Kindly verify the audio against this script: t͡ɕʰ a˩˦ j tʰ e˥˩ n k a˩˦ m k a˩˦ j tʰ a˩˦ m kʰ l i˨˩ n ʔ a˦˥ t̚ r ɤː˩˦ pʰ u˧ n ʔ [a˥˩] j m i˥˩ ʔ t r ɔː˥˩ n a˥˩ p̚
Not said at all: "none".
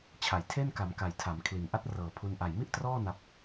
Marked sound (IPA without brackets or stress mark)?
a˨˩